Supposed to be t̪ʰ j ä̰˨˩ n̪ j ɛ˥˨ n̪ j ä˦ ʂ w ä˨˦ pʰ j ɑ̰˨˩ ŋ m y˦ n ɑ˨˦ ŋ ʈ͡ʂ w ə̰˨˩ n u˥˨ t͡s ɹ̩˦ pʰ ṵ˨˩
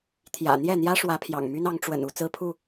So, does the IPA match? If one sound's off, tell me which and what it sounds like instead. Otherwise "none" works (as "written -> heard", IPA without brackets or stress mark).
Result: ṵ˨˩ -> u˥˨